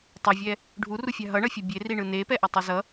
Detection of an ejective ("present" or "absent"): absent